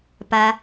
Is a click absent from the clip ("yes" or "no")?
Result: yes